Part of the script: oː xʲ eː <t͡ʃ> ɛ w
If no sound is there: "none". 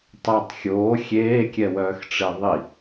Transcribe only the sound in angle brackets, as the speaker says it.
kʲ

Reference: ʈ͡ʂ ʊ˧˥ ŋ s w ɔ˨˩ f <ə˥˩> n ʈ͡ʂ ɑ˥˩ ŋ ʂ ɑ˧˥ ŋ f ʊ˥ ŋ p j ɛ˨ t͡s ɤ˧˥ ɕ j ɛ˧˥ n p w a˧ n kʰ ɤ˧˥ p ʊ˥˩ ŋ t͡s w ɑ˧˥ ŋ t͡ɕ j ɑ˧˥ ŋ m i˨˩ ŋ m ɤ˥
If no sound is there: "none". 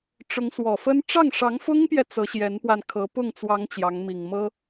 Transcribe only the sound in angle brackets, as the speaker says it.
ə˥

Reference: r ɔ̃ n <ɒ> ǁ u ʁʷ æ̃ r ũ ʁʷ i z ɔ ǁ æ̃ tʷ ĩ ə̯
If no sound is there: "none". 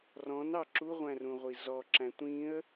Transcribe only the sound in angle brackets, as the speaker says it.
ɑ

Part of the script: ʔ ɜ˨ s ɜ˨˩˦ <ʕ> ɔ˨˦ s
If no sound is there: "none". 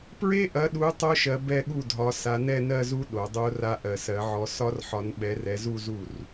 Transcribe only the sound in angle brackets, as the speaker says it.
ʕ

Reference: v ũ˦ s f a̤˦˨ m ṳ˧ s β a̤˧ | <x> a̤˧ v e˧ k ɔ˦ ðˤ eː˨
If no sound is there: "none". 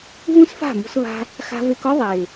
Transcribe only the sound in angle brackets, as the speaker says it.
x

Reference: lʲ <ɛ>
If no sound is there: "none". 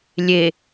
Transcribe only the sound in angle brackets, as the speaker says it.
e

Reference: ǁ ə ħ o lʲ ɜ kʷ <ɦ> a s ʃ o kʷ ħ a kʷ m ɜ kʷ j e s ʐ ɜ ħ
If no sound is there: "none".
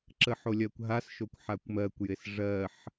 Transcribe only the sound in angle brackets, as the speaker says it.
ɦ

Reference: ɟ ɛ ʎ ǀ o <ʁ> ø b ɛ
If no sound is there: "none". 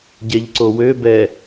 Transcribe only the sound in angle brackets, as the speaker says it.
w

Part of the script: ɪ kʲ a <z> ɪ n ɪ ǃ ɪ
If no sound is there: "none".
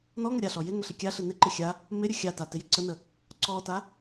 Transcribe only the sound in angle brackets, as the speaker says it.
ɬ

